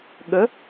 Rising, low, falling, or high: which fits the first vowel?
rising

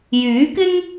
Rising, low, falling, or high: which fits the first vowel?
rising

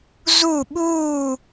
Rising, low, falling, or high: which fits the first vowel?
falling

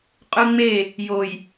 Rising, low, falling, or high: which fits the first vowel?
high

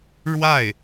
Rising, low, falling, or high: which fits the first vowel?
falling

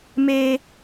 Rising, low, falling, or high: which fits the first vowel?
high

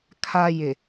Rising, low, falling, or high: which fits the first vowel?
low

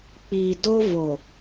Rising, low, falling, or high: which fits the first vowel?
low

